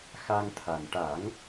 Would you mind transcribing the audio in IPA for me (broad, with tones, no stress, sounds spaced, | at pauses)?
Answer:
x a˧ ŋ t̪ʰ a˨˩ n ʈ a˨˩˦ ŋ